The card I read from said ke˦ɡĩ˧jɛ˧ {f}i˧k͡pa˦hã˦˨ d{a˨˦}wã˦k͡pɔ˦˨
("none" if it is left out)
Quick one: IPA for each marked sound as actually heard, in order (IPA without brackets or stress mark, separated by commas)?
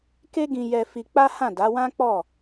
f, a˨˦